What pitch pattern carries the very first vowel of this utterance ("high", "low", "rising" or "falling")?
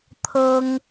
high